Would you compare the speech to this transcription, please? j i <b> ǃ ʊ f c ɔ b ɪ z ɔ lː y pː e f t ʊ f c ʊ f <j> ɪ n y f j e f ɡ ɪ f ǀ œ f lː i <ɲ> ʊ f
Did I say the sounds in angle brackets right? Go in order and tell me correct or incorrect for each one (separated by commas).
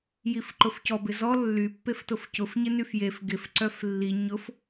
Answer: incorrect, incorrect, correct